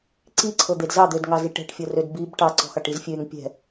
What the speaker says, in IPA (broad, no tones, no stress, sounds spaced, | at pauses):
ǀ i ǀʰ ɤ d̪ e d z ɑ d̪ ø d ŋ ɑ z i ʈ ɛ̤ ʈ fʲ ɤ r ø d b i b ʈ ɑ ǀ ɔ̤ x ɑ ʈ i z fʲ ø ŋ pʲ ɛ̤